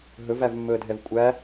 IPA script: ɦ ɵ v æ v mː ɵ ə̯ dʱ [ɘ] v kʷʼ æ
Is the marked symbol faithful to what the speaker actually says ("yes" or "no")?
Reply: no